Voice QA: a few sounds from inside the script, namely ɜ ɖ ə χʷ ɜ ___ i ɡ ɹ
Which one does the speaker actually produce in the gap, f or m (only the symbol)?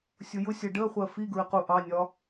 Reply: f